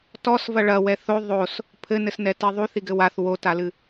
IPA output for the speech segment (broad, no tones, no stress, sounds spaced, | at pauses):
t ɔ s v ɐ ɭ ɐ w ɛ θ o ðˤ o s | pʰ ɘ n ɘ s n ɛ t i ðˤ u θ i ɡ ɘ w a θ w o t a l ɨ